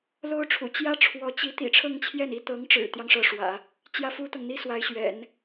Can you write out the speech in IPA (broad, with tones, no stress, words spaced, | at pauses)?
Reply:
lo˥ʊ̯ʈ͡ʂʰṵ˨˩ t͡ɕjä˥ ʈ͡ʂʰwɔ˧˥t͡ɕi˧˥ t̪ḭ˨˩ ʈ͡ʂʰɤ˥˧ŋt͡ɕʰjɛ˥˩ni˥ t̪ɤ˧˥ŋʈ͡ʂɻ̩˨˩t̪jɑ˦ŋ ʂɤ˧˥ʂwä̰˨˩˦ | t͡ɕjä˥˩fu˥t̪ɤ˨ŋ n̪i˥swa˧˥ɪ̯ɕɥɛ̰˨˩˦n